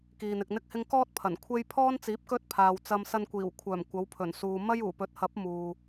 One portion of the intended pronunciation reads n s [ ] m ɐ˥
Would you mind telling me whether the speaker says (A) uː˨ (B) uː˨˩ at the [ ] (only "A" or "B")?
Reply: A